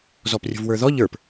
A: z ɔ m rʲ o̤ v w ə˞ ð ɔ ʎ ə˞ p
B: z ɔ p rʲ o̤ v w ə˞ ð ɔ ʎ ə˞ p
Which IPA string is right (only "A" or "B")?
B